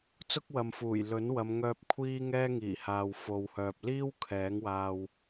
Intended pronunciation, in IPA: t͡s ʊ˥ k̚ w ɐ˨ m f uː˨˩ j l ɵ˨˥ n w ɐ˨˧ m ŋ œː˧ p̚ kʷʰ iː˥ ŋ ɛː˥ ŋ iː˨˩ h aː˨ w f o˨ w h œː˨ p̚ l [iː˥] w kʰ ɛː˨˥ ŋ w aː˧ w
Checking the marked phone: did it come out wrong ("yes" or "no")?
no